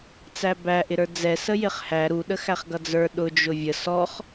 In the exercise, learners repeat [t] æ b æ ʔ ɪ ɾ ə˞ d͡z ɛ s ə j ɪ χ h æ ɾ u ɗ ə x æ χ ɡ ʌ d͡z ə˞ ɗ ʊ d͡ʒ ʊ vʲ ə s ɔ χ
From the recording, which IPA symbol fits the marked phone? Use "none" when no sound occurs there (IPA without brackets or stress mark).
t͡s